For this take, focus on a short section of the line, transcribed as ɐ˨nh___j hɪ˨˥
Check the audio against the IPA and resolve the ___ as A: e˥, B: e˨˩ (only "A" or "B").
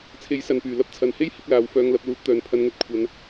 A